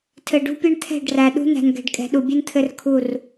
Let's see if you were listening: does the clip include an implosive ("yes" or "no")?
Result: yes